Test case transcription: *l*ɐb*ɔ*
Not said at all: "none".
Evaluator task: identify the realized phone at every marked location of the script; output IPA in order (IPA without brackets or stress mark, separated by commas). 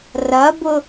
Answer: r, ʊ